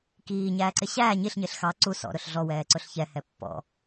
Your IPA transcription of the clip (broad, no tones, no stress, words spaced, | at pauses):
kiːɲæːǀɪ ɕæː ɲiɬɲɪɬ xɑ ǀu sɔ̰ɾʊɬ ɮɔwɛːǀʊɬ çɛhɛ pːɔ̰